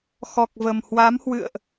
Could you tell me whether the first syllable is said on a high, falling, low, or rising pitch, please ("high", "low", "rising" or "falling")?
low